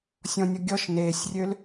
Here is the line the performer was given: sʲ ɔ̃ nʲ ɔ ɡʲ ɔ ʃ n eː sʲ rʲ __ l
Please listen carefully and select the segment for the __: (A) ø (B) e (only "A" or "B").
A